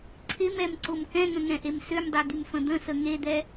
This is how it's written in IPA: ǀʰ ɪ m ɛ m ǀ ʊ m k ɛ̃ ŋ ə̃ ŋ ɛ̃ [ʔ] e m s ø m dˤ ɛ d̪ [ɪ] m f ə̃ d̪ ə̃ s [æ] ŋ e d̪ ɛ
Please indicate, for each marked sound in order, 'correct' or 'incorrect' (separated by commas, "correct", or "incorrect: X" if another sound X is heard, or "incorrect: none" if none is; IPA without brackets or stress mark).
correct, incorrect: y, incorrect: ə